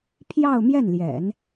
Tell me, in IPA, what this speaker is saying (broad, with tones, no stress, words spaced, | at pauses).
pʰjɑ˥˧ʊ̯mjɛ˥˩nljɛ̰˨˩˦n